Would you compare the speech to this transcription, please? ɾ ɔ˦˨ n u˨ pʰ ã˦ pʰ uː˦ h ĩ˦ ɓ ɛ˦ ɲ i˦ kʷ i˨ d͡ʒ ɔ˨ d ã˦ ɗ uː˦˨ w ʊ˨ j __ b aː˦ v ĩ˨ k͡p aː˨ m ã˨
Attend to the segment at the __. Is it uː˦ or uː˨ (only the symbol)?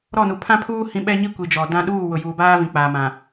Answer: uː˨